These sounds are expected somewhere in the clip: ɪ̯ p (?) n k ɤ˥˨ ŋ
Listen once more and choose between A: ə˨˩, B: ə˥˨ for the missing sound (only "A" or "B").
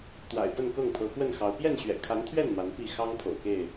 B